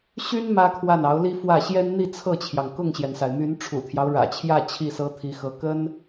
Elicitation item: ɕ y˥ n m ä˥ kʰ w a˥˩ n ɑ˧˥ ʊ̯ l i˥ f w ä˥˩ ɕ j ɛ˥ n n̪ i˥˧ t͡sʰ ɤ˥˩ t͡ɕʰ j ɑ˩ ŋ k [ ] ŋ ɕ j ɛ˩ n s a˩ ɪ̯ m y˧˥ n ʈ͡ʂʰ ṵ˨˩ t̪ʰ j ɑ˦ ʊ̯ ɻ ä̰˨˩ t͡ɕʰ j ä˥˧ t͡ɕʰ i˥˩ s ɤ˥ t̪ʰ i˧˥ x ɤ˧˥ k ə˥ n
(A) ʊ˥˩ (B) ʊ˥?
A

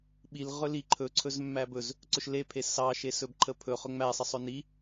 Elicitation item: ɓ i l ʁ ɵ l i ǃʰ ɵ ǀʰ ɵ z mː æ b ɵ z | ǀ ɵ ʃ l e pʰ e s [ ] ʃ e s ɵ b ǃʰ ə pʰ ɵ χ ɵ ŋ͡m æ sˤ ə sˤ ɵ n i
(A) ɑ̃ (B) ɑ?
B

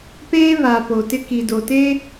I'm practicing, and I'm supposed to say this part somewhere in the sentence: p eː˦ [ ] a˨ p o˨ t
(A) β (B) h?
A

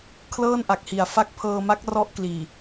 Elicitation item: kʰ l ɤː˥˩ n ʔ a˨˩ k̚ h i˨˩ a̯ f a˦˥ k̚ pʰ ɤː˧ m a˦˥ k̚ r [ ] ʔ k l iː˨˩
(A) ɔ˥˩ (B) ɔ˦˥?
B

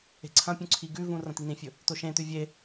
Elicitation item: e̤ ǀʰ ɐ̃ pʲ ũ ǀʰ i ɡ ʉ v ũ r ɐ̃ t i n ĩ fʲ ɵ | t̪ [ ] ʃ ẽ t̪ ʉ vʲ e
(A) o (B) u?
A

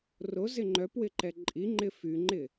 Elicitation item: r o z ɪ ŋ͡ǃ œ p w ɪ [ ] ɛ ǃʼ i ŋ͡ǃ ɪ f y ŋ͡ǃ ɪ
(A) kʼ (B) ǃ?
B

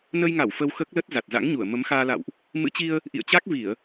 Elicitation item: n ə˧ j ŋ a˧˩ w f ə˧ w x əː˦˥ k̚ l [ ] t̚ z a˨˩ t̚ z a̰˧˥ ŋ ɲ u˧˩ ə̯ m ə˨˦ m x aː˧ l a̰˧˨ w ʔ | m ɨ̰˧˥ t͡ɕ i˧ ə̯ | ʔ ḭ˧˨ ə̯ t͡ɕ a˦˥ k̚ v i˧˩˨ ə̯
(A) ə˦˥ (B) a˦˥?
A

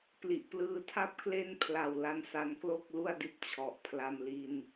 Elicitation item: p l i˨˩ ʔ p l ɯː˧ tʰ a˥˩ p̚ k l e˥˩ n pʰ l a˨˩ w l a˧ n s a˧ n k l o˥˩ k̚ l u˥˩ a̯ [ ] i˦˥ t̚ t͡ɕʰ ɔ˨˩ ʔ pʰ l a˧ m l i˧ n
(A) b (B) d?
B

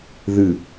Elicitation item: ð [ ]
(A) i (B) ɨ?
B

